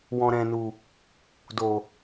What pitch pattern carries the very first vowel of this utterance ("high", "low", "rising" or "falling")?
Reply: low